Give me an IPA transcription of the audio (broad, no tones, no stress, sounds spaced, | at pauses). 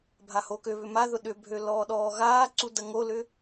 bʱ a h o k ø β ʏ m a ð ʊ ɗ ʏ bʱ ø l ɔː ɗ ɔː ɣ aː ǀ u d ɐ ŋ o l ʏ